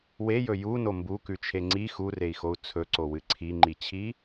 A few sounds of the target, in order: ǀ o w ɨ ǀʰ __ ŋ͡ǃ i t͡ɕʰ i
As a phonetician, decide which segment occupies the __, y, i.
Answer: i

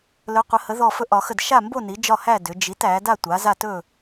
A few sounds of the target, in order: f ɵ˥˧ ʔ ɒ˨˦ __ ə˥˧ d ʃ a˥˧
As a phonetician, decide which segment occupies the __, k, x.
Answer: x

